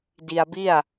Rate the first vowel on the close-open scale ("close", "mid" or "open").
close